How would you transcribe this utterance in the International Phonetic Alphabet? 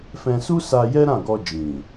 fɛ̃˧su˦sa˧ jɛ˦ɾã˦˨ ɡɔ˧d͡ʒĩ˨

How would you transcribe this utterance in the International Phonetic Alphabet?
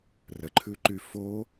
rəǃʰʉǃy fo

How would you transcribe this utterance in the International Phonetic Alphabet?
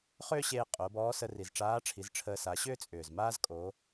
χʏː˥ɕeː˧ qʼo˩˧bɔː˧˥sə˧ ri˩zʈ͡ʂaː˧˥ʈ͡ʂʰi˩˧z ʈ͡ʂʰəː˧sa˩˧ ɕʏː˥t͡sʼʏː˩zmaː˥zkʼo˩˧

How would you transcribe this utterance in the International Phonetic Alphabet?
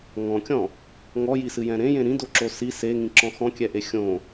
ŋɔ̃kʲɔ̃ | ŋɔjisɨjɛ̃ ɾẽjẽ ɾĩdoǁo si seŋĩǁɔ̃ xɔ̃kʲɛʔe xʲõ

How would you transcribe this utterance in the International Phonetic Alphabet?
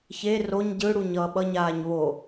çe roɲ ɟɯɽuɲ ʌːɓʌɲaːɲ βo

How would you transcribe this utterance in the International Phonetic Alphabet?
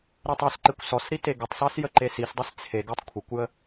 ɾetˤesǃekʷ sɔsɾi teɡətˤsɑs jəǃesisdˤes t͡sʰeɡ ɑtˤkʷʰekʷjə

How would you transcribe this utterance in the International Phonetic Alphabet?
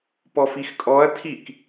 pɔfixkʼɔɐ̯ tʰik

